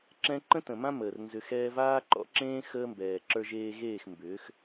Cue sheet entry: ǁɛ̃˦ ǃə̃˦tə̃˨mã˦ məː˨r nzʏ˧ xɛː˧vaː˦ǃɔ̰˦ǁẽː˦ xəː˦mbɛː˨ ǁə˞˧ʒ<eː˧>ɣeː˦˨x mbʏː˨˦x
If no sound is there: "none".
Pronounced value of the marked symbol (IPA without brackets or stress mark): eː˧